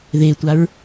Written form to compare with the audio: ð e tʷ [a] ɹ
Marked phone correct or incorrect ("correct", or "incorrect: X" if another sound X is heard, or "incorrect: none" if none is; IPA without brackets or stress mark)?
correct